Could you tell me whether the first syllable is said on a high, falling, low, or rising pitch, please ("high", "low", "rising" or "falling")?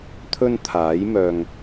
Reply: high